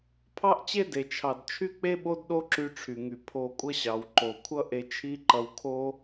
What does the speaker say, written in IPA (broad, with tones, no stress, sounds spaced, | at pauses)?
pʰ ɑ˥ ʔ t͡ɕ e˥ d e˩ t͡ʃʰ ɑ˩ d t͡ʃʰ y˥ k͡p e˥ ɓ o˥ d ɗ o˥ ǁ y˧ ʈ͡ʂʰ y˩ ŋ y˩ pʰ o˧ kʷʼ ʌ˥ ɕ ɑ˩ w ǃ o˩ kʷʰ ʌ˥ ʔ e˧ t͡ʃʰ i˥ ǃ ʌ˧ w kʰ o˥